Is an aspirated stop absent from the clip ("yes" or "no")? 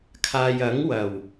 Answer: no